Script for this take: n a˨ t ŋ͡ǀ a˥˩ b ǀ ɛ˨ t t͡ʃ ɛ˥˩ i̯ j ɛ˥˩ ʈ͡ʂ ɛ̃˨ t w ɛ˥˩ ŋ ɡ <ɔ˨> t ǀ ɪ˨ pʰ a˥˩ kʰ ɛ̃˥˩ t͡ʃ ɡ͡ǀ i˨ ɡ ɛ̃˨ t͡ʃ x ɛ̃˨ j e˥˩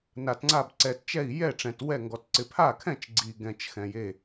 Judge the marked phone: correct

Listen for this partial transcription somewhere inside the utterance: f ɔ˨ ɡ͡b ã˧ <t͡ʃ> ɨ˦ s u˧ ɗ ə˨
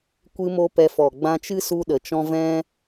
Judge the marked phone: correct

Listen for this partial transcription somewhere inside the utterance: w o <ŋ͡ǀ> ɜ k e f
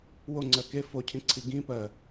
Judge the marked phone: correct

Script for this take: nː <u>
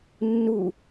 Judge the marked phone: correct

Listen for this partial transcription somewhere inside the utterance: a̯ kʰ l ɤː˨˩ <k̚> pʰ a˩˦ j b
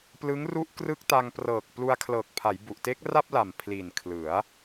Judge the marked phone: correct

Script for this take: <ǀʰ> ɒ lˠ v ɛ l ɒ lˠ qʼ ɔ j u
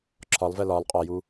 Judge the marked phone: incorrect: ǁʰ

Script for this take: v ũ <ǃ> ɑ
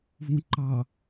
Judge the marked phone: correct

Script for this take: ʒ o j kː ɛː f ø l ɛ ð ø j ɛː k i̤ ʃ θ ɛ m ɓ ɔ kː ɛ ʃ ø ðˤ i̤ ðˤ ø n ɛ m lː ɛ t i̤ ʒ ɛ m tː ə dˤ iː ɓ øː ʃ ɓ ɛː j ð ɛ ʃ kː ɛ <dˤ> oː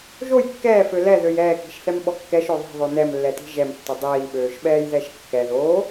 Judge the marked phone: incorrect: ð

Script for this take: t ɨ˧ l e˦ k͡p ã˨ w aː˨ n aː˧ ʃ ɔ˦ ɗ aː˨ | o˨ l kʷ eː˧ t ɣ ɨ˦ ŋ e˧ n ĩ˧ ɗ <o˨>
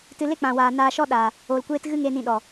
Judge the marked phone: incorrect: ɔ˨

